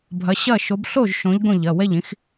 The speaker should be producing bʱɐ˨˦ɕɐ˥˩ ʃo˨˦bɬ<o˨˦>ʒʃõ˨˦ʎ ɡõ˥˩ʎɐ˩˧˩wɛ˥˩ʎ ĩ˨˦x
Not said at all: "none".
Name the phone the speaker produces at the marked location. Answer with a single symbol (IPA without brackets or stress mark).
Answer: o˥˩